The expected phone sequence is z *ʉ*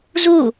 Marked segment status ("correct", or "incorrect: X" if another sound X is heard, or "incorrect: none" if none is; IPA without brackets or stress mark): incorrect: u